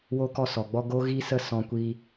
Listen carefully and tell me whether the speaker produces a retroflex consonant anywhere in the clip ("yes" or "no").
no